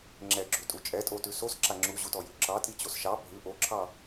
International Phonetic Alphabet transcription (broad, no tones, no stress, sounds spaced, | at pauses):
ŋ͡ǁ ɛ ɡ͡ǁ ʉ tʼ u t͡ʃʼ ɛ tʼ o t ʉ s o s ǁ a ŋ͡ǁ u ʑ u t ɔ j ʉ ǁ ɑ tʼ i t͡ɕ o s ʃ ɑ bʱ ʉ ʔ o ǁʰ ɑ